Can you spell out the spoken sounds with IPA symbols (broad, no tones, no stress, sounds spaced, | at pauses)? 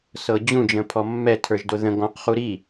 s ɤ d͡ʑ ũ d͡ʒ ə̃ pʰ ɔ mː ɛ tʰ ə˞ ʒ d o ð ə̃ ɡ ɔ̃ q χ u ɾ i